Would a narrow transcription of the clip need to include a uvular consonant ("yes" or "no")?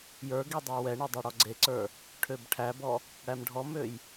no